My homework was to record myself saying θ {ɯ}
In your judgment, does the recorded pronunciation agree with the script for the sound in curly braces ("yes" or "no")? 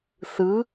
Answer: yes